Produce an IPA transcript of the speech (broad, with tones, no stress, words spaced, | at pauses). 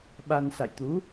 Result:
ɓa˧n sa̰˧˨jt̪u˨˦